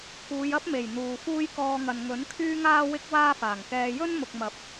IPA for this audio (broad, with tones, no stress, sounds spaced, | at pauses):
k uː˨˧ j ɐ˥ p̚ m e˨˩ j n̪ uː˨ f uː˥ j k ɔː˧ ŋ ɐ˨ n ŋ ɵ˨˥ n kʰ yː˥ ŋ aː˥ w ɪ˥ k̚ w aː˥ f aː˨˩ ŋ k ɛː˧ j ɵ˥ n m ʊ˨ k̚ m ɐ˨˥ p̚